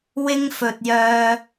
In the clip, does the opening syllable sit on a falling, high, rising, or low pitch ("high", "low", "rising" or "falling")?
high